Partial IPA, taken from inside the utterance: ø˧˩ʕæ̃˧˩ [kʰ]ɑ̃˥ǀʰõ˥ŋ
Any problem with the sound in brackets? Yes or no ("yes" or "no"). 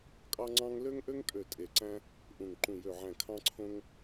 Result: no